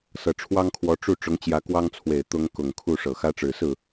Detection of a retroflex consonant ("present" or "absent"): present